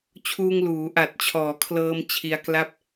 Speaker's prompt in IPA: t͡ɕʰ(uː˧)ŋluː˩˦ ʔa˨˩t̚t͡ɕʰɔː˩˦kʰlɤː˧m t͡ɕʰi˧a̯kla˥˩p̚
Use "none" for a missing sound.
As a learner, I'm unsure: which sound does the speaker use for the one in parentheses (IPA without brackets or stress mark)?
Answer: uː˧